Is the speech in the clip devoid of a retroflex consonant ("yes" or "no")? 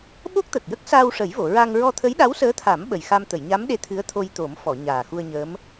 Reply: no